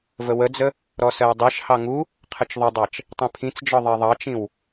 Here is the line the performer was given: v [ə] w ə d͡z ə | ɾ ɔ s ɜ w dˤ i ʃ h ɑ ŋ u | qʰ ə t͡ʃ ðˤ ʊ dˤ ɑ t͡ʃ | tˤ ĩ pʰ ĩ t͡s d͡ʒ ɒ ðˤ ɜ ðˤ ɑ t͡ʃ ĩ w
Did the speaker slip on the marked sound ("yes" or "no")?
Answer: no